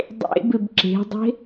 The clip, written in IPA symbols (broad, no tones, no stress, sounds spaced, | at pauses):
dˤ ḛ b ɪ b ǁ e̤ dˤ e̤